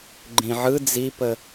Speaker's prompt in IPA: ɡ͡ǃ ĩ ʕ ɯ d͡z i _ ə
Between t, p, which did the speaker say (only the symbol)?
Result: p